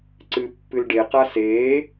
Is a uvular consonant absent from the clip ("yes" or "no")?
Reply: no